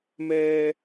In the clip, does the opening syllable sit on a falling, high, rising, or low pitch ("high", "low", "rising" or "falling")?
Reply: high